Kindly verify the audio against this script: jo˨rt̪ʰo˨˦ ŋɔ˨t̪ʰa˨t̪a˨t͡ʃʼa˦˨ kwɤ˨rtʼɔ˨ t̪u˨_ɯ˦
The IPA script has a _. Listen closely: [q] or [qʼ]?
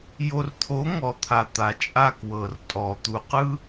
q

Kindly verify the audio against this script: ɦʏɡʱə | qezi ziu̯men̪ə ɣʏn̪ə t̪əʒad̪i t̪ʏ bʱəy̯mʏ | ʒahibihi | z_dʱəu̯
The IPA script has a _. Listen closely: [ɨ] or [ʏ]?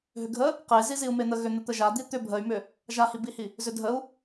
ʏ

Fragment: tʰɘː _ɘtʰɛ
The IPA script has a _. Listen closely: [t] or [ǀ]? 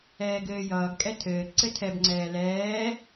ǀ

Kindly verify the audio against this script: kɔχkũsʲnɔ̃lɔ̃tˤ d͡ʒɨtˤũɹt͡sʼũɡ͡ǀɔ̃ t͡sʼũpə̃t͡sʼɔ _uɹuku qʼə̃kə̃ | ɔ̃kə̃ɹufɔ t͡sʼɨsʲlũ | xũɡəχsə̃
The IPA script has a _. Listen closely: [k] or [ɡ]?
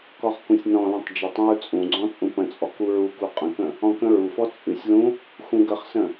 k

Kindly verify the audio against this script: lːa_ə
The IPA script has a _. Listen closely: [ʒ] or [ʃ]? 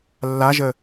ʒ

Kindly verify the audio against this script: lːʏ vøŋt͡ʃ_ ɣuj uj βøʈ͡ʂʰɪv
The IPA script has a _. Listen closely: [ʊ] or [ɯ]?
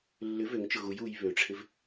ʊ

